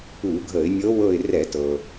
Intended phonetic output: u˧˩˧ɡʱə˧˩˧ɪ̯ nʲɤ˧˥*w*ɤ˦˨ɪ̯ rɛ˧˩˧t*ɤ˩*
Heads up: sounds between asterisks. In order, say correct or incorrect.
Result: correct, correct

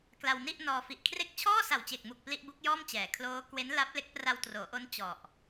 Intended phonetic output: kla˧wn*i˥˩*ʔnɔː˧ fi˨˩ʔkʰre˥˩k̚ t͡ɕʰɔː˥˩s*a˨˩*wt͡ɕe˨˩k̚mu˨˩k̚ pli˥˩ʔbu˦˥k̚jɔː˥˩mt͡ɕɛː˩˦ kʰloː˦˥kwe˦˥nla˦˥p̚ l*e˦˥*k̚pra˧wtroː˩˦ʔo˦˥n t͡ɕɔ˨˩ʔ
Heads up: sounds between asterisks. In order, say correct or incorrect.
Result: correct, correct, correct

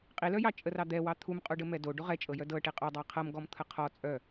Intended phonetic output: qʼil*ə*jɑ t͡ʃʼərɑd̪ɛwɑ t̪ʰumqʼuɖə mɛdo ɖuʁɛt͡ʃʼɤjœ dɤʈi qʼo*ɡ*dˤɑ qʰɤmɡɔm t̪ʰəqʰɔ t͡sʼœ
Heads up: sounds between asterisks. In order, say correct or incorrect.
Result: incorrect: œ, incorrect: none

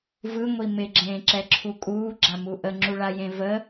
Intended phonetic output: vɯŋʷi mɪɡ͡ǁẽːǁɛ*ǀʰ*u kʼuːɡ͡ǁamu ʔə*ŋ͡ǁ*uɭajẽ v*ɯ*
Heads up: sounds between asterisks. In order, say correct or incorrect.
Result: incorrect: ǁʰ, correct, incorrect: ə

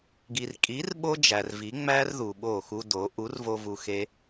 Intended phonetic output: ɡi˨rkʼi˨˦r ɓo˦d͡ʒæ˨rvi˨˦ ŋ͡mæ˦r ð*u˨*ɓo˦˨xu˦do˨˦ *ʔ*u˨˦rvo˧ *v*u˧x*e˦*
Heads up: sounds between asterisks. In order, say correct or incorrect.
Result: correct, correct, correct, correct

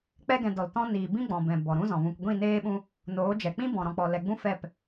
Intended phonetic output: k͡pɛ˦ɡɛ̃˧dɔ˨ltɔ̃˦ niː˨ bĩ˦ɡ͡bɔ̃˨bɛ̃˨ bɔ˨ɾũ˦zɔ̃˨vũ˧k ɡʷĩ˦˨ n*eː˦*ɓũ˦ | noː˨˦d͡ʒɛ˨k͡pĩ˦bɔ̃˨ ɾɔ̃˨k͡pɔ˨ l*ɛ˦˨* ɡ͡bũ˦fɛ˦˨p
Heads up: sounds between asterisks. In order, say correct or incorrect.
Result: correct, incorrect: ɛ˨

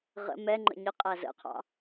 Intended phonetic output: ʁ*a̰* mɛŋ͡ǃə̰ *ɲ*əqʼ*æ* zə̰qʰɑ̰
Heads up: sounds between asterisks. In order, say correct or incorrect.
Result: incorrect: ə̰, correct, correct

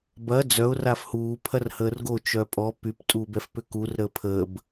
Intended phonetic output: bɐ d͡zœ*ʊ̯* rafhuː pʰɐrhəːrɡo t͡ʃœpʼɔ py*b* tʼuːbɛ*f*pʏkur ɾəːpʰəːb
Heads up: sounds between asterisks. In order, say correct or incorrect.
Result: correct, incorrect: p, correct

